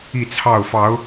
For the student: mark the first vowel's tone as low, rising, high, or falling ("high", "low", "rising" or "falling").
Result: falling